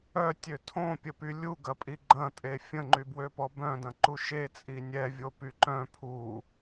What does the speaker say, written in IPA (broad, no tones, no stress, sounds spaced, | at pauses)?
œ tʲ ø tʰ õ pʲ ə p y lʲ u ɡ ɐ pʼ i ɡ͡ǃ ɐ̃ tʼ e fʲ ə̃ ŋ͡ǃ y b w ø p ɔ b œ̃ d ɐ̃ ǃ u ʃ e t͡sʼ i nʲ ɛ vʲ o p y ǃ œ̃ pʰ u